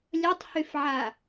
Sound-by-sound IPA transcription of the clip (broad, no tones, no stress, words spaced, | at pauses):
lʲɐtˤhyfʕa